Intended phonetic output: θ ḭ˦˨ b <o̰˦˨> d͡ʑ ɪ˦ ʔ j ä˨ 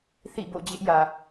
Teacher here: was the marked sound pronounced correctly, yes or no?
yes